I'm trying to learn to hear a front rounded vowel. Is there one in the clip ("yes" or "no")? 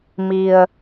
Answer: no